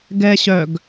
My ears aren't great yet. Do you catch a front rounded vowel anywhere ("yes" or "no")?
yes